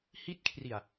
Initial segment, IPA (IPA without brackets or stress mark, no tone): h